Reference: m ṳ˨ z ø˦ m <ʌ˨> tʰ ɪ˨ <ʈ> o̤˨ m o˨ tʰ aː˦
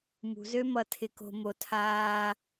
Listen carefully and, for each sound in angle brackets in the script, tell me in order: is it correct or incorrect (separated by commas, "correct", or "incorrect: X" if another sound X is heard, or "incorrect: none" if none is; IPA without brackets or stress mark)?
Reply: correct, incorrect: k